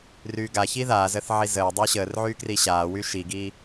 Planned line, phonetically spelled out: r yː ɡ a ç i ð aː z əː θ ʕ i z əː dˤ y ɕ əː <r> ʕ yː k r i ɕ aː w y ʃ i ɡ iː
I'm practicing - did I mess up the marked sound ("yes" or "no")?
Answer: no